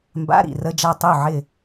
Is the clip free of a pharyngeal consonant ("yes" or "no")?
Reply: no